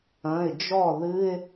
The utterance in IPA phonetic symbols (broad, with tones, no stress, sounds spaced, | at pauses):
ɐ̃˩˧˩ ɪ̯ d͡ʒ ɔ˥˩ ð ɨ˧˥˧ ɪ̯